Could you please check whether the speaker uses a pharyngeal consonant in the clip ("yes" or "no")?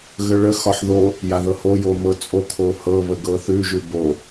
yes